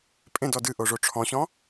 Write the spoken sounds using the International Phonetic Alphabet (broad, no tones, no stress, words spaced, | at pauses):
pʼẽdɔ dɨʔoʐo ʈ͡ʂʰɔ̃ɕɔ̃